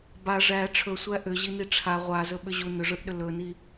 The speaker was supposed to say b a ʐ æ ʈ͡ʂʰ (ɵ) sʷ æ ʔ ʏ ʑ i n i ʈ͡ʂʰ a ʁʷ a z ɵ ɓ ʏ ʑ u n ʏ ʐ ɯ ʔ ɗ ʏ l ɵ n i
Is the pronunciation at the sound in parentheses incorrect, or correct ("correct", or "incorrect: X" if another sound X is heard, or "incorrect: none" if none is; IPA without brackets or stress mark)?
correct